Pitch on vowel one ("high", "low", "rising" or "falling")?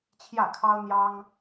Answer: falling